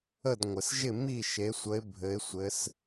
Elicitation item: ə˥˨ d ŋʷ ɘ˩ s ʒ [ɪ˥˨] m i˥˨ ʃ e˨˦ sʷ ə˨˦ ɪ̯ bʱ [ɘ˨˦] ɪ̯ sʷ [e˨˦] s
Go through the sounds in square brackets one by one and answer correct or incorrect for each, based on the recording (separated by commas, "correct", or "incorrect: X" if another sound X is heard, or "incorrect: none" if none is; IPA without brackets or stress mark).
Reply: correct, correct, incorrect: ɘ˨˦